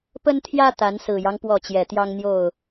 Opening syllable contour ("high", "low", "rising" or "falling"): high